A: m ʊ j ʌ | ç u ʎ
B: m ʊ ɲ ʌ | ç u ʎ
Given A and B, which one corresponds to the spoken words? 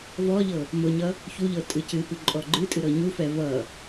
B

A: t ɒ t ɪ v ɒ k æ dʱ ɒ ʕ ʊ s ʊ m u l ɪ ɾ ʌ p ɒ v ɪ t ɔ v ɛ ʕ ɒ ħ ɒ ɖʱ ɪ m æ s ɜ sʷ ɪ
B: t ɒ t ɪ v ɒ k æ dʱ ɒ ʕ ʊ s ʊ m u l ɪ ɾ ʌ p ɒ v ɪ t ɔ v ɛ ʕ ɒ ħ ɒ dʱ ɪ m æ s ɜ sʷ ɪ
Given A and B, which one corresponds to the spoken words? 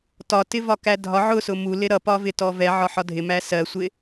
B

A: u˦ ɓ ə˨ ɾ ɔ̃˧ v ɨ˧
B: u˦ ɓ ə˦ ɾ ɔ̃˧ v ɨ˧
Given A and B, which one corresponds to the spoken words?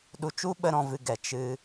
B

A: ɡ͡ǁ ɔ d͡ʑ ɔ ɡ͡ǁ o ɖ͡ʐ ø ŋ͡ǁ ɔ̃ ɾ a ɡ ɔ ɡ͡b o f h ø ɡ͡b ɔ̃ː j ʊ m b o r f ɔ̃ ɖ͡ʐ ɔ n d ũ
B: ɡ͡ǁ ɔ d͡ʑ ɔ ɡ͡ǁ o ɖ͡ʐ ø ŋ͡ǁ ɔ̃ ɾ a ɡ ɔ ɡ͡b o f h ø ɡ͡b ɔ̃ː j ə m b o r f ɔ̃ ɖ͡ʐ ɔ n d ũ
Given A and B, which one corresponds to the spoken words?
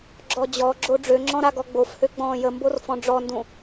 B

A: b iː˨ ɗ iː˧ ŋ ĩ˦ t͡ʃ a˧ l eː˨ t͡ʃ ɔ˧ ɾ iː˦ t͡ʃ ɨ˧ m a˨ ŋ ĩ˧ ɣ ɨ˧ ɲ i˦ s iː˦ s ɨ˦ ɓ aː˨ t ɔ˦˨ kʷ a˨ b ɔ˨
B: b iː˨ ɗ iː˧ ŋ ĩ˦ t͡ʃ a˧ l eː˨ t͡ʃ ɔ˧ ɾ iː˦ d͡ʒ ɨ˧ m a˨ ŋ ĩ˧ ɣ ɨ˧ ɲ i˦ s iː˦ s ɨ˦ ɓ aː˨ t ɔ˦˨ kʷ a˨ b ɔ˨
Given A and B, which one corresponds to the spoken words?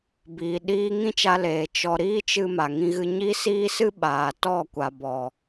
A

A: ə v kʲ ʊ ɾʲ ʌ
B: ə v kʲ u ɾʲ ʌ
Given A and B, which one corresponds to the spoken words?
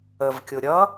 A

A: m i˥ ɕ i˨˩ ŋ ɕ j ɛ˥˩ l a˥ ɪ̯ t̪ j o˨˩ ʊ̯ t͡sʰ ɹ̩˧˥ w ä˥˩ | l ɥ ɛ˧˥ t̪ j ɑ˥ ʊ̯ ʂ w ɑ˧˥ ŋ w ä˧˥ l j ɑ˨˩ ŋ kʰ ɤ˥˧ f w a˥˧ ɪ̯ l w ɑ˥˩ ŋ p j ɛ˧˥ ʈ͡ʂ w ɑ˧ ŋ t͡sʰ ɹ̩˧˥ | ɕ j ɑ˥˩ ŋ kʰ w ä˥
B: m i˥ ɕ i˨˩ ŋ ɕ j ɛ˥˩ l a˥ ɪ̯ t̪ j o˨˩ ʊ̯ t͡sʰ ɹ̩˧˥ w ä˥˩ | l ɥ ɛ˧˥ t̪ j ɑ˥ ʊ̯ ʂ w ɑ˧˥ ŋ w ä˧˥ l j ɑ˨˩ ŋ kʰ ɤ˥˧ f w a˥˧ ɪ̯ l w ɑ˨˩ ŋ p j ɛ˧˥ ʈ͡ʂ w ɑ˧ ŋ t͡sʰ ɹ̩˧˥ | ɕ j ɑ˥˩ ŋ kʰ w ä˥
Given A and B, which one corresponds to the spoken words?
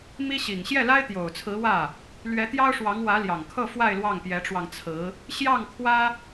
A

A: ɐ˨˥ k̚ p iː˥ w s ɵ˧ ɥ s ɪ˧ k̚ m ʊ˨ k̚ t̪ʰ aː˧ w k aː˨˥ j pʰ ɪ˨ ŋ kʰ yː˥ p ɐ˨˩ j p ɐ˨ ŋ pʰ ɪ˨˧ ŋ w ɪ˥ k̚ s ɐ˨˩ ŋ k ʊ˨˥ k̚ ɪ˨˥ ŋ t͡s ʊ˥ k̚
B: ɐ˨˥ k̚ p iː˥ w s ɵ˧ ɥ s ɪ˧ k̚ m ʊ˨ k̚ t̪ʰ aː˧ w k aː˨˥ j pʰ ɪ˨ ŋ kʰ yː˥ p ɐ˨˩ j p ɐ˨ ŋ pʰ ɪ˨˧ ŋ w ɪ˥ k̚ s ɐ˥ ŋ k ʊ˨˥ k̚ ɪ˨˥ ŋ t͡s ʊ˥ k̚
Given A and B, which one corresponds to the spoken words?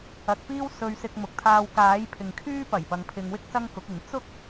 B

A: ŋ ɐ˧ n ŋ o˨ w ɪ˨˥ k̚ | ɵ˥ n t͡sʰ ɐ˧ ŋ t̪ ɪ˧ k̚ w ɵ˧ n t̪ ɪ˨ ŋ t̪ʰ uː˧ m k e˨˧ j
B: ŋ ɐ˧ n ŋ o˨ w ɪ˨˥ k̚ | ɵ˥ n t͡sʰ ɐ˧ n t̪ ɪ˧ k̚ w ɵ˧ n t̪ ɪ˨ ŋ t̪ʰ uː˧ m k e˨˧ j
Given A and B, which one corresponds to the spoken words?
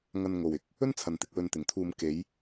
B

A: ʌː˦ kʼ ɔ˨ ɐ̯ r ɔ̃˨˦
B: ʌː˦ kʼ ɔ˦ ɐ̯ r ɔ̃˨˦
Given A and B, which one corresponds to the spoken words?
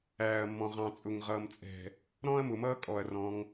A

